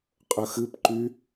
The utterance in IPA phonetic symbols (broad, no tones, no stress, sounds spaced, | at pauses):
qʼ ə x ɨ p ǃ y